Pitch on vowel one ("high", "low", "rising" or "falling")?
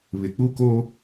low